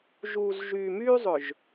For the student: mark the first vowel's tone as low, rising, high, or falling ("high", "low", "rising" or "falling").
low